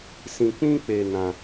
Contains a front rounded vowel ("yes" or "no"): no